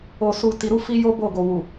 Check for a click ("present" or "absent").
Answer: absent